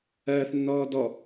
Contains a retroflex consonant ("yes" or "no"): no